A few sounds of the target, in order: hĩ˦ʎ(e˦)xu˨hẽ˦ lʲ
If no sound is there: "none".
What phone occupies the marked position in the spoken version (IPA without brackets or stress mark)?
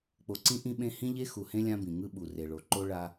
e˦